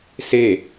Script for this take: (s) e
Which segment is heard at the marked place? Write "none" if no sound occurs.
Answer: s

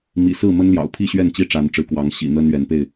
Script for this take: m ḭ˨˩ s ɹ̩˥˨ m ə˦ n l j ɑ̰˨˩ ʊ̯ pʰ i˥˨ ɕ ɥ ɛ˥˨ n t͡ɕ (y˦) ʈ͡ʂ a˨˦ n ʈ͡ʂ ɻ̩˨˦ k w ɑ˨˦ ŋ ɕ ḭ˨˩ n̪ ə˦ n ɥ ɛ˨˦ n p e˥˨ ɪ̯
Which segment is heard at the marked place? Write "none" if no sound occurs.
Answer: i˦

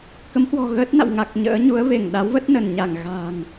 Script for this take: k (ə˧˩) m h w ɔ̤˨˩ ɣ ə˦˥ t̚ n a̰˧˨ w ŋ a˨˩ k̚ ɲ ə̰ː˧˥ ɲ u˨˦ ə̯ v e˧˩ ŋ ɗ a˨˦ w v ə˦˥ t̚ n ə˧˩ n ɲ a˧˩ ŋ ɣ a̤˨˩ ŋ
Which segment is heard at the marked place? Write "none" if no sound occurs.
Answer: ə˨˦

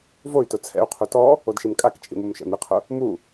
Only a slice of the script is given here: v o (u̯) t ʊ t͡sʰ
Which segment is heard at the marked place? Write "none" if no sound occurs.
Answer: y̯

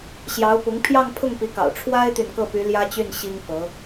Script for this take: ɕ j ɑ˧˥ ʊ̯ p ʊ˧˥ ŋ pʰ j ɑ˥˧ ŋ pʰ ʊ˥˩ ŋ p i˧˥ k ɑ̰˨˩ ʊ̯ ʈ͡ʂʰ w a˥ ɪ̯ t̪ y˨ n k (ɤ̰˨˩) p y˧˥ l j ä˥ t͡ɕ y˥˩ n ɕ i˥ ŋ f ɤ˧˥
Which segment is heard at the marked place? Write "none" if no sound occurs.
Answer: ɤ˥˩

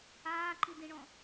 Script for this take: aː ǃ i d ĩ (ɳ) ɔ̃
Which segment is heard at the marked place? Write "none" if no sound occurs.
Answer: ɳ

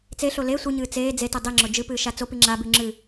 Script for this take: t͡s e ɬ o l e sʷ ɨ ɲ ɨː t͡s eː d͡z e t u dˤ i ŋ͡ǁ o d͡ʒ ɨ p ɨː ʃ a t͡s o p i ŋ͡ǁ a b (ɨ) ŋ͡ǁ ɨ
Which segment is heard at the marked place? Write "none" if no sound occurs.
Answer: ʉ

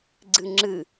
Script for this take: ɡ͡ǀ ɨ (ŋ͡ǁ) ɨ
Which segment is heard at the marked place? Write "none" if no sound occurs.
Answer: ŋ͡ǁ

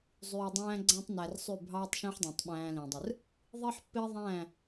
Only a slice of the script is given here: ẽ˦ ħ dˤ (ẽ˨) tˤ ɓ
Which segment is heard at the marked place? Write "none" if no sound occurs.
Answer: ẽ˨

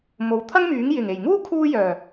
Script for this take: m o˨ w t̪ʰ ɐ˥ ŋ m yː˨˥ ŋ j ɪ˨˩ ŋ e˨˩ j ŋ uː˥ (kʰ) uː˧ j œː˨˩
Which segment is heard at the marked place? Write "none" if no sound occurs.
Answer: kʰ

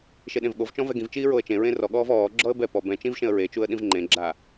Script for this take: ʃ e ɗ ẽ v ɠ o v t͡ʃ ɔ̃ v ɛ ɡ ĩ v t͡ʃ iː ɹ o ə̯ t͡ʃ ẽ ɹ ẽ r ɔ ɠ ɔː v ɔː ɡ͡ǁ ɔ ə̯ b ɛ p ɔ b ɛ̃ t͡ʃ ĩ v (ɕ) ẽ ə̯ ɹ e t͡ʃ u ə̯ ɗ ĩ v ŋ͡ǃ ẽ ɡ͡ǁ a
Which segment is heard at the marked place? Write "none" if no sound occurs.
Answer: ʃ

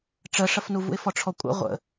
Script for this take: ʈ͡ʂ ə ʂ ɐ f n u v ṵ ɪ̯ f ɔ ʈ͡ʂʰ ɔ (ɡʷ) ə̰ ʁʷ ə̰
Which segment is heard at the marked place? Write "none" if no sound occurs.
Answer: kʷʼ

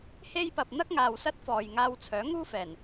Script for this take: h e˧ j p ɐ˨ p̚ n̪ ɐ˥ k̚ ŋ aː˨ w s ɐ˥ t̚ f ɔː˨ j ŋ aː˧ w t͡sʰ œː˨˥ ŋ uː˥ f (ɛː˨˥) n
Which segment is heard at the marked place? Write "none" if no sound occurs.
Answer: ɛː˨˩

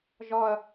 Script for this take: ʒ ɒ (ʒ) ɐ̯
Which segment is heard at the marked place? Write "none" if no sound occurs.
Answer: none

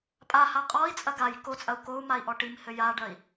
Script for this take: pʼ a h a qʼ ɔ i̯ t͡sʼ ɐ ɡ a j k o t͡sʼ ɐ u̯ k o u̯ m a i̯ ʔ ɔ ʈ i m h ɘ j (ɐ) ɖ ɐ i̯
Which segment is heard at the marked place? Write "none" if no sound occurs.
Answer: a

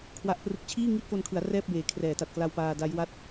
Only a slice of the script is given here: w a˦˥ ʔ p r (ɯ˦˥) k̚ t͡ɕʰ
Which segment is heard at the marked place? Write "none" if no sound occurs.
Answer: ɯ˦˥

